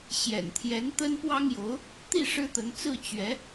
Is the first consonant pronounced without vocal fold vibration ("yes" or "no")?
yes